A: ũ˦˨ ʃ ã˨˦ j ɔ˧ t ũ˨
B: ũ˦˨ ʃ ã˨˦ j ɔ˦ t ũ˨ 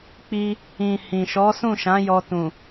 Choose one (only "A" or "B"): A